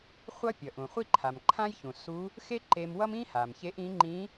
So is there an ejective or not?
no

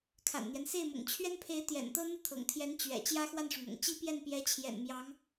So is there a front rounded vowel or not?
no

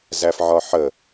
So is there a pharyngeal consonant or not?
yes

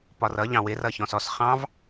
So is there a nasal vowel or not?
yes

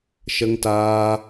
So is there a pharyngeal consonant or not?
no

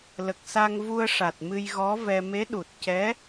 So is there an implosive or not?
yes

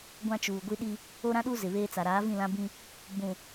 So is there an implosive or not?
yes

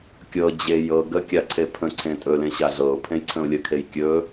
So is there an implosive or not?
no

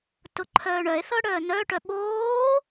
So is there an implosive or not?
yes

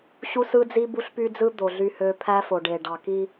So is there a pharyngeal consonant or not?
no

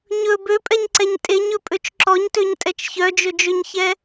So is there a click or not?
yes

